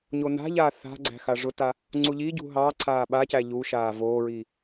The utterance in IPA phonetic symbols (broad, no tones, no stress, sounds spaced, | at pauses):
ɲ o n a̤ ʎ aː θ a̤ ɡ͡ǀ æ̤ x a ʐ ʊ t a | ŋ͡ǀ u ʎ i ɟ ṳ ɦ ɑ ǀʰ aː ɓ a c æ ʎ u ʃ aː v oː ɹ i